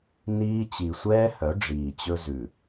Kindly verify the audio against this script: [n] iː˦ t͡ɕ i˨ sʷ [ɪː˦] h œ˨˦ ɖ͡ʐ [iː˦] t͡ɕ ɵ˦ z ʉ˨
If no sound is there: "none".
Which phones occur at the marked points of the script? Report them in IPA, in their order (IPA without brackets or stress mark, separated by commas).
n, ɛː˦, iː˨